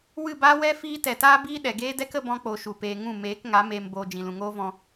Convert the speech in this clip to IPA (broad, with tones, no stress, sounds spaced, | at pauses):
w ɨ˦˨ b aː˦ w ɛ˦ f iː˦ t ɛ˨ t aː˦ b iː˦ ɗ ɛ˨ ɡ eː˦ d ɛ˦ k ə˧ b ɔ̃˧ k͡p o˨ ʃ u˨ p eː˨ ŋ ũ˦˨ m eː˨˦ k ŋ a˨˦ m eː˨ m b oː˨ d͡ʒ ĩ˨ l ũ˨ ŋ oː˦ v ɔ̃˧